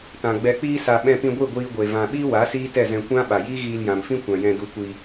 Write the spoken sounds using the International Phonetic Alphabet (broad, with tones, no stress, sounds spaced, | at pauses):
t ã˨ ɡ͡b ɛ˨ k͡p iː˧ s a˨ ɓ ɛ̃˧ p ĩ˧ ɡʷ i˦˨ ɡʷ iː˧ ɡʷ e˨ v ã˨ ɓ iː˦ w a˨˦ s iː˦ t ɛ˦˨ z ɛ̃˧ kʷ ã˦ ɓ a˨ j iː˦ ɣ iː˧ l j ã˨ m f ĩ˦ kʷ ã˨ j ɛ̃˧ d u˧ kʷ i˧